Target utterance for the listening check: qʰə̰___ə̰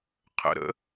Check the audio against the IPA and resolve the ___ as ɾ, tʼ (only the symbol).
ɾ